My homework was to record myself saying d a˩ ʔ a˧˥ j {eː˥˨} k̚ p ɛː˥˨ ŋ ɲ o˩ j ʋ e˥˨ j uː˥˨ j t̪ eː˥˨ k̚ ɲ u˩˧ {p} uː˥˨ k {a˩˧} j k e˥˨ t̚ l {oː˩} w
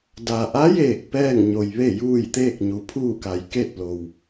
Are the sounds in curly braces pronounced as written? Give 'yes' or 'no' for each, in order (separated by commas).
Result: no, no, yes, no